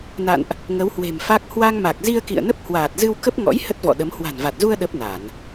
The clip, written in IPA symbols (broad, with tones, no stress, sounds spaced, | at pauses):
n a̰˧˨ n ʔ | ŋ ə˨˦ w h w e̤˨˩ m f a˦˥ k̚ h w a˧ ŋ m a˨˩ k̚ z i˧ ə̯ k ḭ˧˨ ə̯ n ə˦˥ p̚ h w aː˨˩ t̚ z ɨ˧ w k ə˦˥ p̚ ŋ ɔ̰˧˥ j h ə˦˥ t̚ v ɔ̰˧˨ ɗ ə˨˦ m h w a̤˨˩ n v a˨˩ t̚ z u˧ ə̯ ɗ ə˦˥ p̚ n a˧˩˨ n